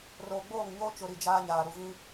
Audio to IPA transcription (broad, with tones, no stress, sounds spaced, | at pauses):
r oː˨ ɡ͡b oː˦˨ ŋ ɲ oː˦ t͡ʃ ʊ˨ ɾ i˨ d͡ʒ aː˦ ɲ aː˨ ɾ u˨ v ĩ˦